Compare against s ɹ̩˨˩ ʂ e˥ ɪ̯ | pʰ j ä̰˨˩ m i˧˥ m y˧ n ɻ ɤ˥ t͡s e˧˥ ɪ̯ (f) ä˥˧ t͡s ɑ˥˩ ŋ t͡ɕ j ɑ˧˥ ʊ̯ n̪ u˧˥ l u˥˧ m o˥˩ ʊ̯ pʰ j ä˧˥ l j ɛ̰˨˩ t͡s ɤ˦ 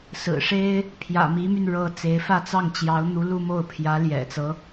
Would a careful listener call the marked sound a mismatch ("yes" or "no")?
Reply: no